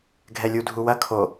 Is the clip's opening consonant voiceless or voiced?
voiced